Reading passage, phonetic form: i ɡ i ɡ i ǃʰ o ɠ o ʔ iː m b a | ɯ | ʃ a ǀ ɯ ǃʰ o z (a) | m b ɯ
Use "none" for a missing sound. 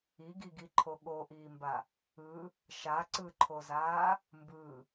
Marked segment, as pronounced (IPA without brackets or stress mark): aː